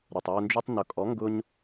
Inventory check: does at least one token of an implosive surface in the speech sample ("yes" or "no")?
no